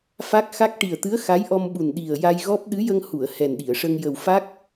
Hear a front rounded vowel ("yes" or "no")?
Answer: no